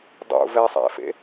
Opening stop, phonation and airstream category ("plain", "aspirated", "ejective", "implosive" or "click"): plain